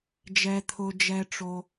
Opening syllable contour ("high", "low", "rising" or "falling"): low